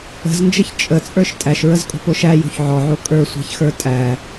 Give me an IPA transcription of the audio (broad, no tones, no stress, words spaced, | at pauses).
ə̤znd͡ʒəç t͡ʃʼət͡sʼə˞ʃ tʼæʃɹəzkʼo̤poʃ æjo̤ç ʕɔʕo kʼə˞sʷæ̤çxə˞ tʼæ